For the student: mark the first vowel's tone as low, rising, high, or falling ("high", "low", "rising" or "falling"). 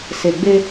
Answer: low